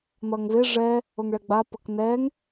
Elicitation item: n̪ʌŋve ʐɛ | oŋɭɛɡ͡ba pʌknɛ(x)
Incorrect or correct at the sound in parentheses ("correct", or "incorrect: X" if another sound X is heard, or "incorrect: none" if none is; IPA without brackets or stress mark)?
incorrect: ŋ